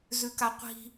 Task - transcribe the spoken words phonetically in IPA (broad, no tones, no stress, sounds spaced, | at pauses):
z ʉ k a qʷ i̤